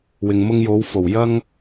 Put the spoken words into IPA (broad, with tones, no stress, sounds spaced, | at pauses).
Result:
w ɪ˨ ŋ m ʊ˧ ŋ j o˨˧ w f o˨˩ w j ɐ˧ ŋ